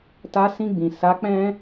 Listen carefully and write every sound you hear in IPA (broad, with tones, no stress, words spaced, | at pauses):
ta˧sĩ˧ɡ͡bĩ˨ sa˨˦k͡pɛ̃˦